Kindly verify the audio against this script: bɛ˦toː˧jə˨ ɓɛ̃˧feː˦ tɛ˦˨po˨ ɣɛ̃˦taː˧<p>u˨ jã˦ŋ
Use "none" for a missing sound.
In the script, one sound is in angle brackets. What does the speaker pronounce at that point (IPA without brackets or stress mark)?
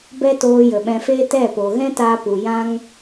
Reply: p